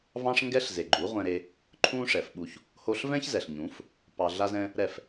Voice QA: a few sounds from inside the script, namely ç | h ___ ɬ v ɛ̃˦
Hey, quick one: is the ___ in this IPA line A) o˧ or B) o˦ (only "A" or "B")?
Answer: A